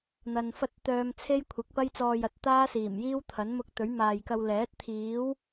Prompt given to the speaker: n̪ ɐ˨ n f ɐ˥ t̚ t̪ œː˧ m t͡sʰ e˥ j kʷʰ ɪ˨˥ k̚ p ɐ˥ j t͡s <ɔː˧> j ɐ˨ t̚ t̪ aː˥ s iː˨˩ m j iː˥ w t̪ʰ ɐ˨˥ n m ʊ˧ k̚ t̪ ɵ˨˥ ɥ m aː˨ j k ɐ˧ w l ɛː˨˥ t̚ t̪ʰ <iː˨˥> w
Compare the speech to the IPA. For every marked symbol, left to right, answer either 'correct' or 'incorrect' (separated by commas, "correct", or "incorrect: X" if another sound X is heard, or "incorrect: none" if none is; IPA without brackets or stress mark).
correct, correct